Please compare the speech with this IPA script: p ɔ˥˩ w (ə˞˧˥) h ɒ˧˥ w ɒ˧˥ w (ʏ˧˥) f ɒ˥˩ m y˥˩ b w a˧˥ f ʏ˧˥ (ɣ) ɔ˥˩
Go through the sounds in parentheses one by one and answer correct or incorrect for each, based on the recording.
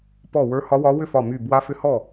correct, incorrect, incorrect

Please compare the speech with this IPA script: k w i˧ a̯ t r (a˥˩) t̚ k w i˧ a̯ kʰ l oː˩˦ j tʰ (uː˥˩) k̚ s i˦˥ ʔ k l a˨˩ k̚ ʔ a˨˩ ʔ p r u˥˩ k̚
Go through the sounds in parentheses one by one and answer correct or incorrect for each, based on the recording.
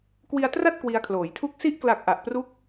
correct, incorrect

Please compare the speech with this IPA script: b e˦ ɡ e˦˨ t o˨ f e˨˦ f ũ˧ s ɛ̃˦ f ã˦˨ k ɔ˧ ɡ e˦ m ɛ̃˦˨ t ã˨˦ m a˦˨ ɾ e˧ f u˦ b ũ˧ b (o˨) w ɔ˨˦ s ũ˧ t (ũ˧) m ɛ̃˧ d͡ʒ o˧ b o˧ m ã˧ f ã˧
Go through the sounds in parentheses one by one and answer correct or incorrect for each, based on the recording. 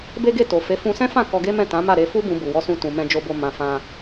incorrect, incorrect

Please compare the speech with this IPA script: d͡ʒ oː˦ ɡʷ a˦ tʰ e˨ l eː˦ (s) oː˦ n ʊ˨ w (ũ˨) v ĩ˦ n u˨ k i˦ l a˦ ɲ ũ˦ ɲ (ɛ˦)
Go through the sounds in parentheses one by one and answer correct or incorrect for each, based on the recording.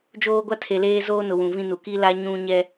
incorrect, correct, correct

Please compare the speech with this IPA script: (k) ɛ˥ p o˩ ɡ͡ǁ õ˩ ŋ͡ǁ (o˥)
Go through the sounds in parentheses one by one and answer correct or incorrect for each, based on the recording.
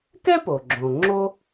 correct, correct

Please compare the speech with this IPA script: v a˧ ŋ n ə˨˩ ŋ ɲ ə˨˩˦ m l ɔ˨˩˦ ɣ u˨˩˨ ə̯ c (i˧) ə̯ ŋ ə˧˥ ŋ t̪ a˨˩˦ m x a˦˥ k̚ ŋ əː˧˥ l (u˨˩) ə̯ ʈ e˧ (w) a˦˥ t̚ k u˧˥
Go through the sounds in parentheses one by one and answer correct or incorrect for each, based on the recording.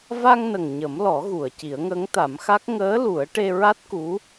incorrect, incorrect, incorrect

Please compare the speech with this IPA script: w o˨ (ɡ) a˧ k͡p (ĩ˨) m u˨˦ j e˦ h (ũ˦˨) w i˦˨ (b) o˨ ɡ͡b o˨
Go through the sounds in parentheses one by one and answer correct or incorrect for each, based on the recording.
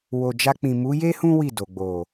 incorrect, correct, incorrect, incorrect

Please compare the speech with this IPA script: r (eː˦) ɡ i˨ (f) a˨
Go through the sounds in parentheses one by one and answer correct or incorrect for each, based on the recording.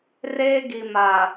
correct, incorrect

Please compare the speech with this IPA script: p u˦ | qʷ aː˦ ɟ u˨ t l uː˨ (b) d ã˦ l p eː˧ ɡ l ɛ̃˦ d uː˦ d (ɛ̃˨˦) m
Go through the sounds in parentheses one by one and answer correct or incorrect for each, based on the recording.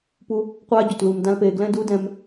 incorrect, incorrect

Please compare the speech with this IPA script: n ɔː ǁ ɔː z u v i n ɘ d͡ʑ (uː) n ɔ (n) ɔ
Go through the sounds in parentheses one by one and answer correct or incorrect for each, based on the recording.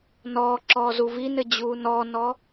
correct, correct

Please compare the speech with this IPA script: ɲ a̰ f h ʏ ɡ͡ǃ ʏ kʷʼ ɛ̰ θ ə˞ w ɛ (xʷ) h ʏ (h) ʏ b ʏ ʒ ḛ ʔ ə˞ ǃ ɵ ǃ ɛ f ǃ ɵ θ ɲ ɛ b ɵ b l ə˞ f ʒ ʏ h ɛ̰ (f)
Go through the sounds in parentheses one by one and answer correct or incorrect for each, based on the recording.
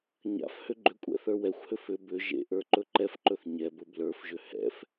correct, incorrect, correct

